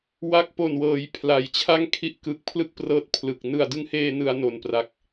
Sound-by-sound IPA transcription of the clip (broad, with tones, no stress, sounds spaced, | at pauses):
w a˦˥ k̚ p o˨˩ n w ɤː˩˦ j pʰ l a˨˩ j t͡ɕʰ a˥˩ ŋ kʰ i˦˥ ʔ k ɯ˨˩ k̚ pʰ l ɯ˥˩ k̚ p r ɤː˦˥ t̚ pʰ l ɯ˨˩ k̚ n ɯ˨˩ a̯ d ɯ˦˥ ŋ h eː˧ n ɯ˧ a̯ n o˨˩ n p r a˨˩ k̚